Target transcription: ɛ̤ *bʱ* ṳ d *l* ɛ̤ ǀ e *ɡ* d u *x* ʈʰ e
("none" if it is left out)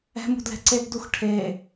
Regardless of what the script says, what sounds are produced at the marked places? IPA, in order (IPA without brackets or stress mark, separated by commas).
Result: m, l, ɡ, x